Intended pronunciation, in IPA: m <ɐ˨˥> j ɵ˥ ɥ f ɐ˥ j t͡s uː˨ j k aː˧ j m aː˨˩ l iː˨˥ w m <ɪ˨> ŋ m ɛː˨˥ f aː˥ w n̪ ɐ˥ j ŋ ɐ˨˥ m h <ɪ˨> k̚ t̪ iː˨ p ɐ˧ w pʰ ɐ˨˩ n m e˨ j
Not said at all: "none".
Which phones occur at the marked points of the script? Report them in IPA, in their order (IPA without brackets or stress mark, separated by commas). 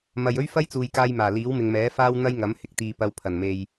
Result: ɐ˨, ɪ˨, ɪ˨˥